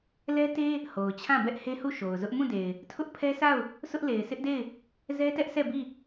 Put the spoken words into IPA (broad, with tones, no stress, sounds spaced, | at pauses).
l ɛ˦ t e˦ | h o˨ ʊ̯ t͡ɕʰ ã˦˨ b ɛ˦ ʔ h e˦ h u˦˨ ʃ o˨ ʊ̯ z ʊ˦ ʔ m ũ˦˨ d e˨ ɪ̯ | tʰ ʊ˦ ʔ pʰ ɛ˦ sʰ a˦˨ ʊ̯ | sʰ ʊ˦ ʔ l e˨ ɪ̯ sʰ ɪ˦ ʔ d e˦˨ ɪ̯ | z ɛ˦ t ɛ˦ ʔ sʰ ɛ˦˨ b i˦˨